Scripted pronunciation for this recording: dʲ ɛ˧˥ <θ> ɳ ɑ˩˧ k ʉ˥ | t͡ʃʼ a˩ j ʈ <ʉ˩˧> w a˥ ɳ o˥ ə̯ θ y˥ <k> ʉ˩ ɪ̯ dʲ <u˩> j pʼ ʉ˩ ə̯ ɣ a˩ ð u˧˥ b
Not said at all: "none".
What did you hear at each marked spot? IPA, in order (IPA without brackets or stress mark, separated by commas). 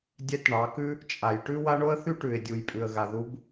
t, ʉ˥, ʈ, u˩